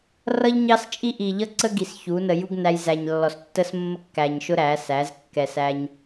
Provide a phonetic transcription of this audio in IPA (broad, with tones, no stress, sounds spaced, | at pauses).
r ʌ˦ ʎ ɲ ɑ˦ s t͡ʃʼ i˦ ʔ i˨ ʎ ʌ˦ ǀ ə˦ ɡ i˨ s ç u˨˦ n ə˧ j u˦ ɡ n æ˧ j z æ˨ ɲ lː ɔ˨ s tː ə˦ s mː ə˦ kː æ˨ ɲ ʃ ʊ˦ ɾ æ˨˦ s æ˨˦ z kː ɛ˨ s æ˧ ɲ